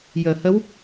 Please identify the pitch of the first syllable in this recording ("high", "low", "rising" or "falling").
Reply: low